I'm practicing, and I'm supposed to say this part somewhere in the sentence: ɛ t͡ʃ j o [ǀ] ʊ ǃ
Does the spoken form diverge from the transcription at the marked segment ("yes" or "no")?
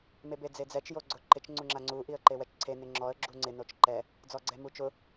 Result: yes